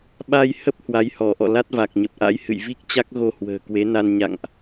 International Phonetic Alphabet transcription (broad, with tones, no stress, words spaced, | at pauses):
ɓa˧jhə˦˥p̚ hwa˨˦jhɔ˧˩ʔɔ̰˧˨ la˦˥t̚va˨˩k̚ɲə˨˩p̚ʔa̰˧˥j hɨ̰˧˨jvi˦˥k̚ t͡ɕa˦˥k̚ɣo˧ hwə̤ː˨˩kwe˨˦na˧n ɲa̰˧˨ŋʔ